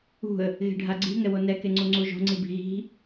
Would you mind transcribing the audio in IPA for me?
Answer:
ṳ ə̯ | ɣ e̤ ɖʱ a ɡ͡ǀ i̤ ŋ ɛ w o n ɛ k e ŋ͡ǀ u ŋ͡ǀ u ʒ o̤ ŋ͡ǀ i b i̤ ɣ i̤

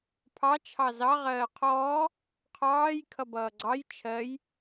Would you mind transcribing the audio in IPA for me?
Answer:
pʰ ɑ t͡ʃʰ ɑ z ɑ ʁ ɜː qʰ ɔː | qʰ ɑː j kʰ ʌ b ʌː ɡ͡ǀ ɑ j t͡ʃʰ ɜ j

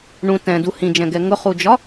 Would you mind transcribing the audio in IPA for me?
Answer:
ɳ ũ t ɛ̃ d u h ĩ d͡ʒ ɛ̃ ɡ ɛ ŋ ʊ χ u d͡ʒ ɒ

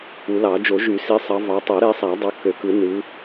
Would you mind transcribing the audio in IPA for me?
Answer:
u˨˩˦ l ɑ˨˩˦ d͡ʒ o˨˩˦ ʒ y˨˩˦ s i˨˦ sˤ ɑ˨˦ v ɑ˨˦ tˤ o˨˩˦ ɾ e˨˦ sˤ æ˨˩˦ dˤ o˨˦ k ø˨˩˦ k ɯ˨˩˦ n ɯ˨˦

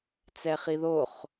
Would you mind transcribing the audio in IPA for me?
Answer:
t͡s ɛ χ i ð o χ

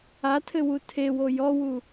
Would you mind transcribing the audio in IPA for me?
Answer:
a tʰ ɘ w u tʰ e w o j ɔ w u

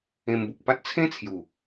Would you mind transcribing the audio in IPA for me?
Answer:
ẽ˧ m b u˨ k̚ p a˦ t̚ t͡sʰ ẽ˦ t͡sʰ j u˨˩

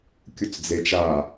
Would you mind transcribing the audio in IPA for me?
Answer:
kʲ u t͡s d͡z e t͡ʃ a

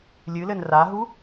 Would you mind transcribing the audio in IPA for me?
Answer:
lʲ ɨ l ɘ n r a ɦ u

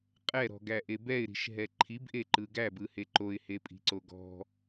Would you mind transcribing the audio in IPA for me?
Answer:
qʼ ɛ ɾ ɔ̤ ɡ æ ʔ e b ɛ ɪ̯ ɾ i̤ ʃ ɦ ɛ ǃʰ i b ʔ e ǃ ɯ ɡ æ b ɯ h e ǃ o ɪ̯ h e pʼ i̤ ǀ o ɡ ɔ̤

